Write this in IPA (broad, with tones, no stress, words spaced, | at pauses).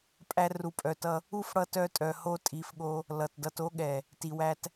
pʼæ˧ ru˨pʼœ˨tʌ˧ | u˦˨fɽʌ˧ tœ˧tʼœ˨ho˧ tʼi˨fɠo˧ | lʌ˨tdʌ˧to˦ ɠɛ˨ | ti˨wæ˧t